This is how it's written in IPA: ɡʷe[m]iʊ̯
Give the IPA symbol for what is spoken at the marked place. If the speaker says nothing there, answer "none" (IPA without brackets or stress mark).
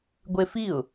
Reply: f